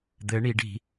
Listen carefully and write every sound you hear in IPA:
d̪ɘ ɳiɖ i̤

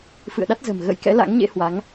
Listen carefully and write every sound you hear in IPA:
fɨ̰˧˨ə̯ɗa˦˥t̚zə̤˨˩m ɣə̰˧˥jkɛ̰˧˥la̰˧˥ŋɲḛ˧˥ hwa˨˦ŋ

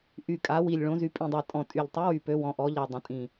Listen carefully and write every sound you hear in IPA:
ʔy˨˩kʼa˩˧ wi˨˩lʲ ɭõ˩˧zy˩˧ pʼĩ˨˩dˤa˨˩tʼɔ̃˨˩ tʼy˨˩ʎ tˤɛ˨˥wy˨˩pø˩˧ wɔ̃˩˧ʔɔ˩˧ʎa˨˩ dˤə̃˩˧tʼĩ˨˩

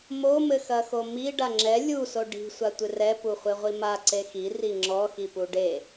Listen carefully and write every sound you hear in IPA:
momɘxɐxo mi ɖaŋ͡ǁɛ lʲuso ɖi̤ sʷatʷɨrɛ puχʷeʁʷima ǀexi riŋ͡ǁɔxipu ɖe

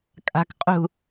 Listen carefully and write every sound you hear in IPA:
kʼa̤k qʼṳ

